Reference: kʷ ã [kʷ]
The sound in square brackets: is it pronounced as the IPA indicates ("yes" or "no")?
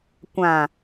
no